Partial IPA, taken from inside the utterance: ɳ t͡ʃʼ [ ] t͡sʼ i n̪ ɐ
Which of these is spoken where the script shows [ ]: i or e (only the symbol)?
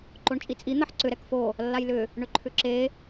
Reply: i